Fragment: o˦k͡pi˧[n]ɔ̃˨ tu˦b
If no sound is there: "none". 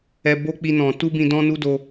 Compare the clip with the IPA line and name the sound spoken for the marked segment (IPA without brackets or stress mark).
n